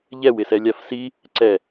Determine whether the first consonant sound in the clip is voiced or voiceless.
voiced